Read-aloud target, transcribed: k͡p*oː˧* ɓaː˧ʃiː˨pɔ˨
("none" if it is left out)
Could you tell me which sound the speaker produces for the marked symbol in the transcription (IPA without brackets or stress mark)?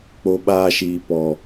o˧